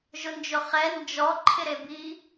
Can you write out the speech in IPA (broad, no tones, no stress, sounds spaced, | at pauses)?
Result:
ʒ ʊ n d͡ʒ ʊ χ ɛ n d͡ʒ ɔ ǃʰ ɪ ɾ e b i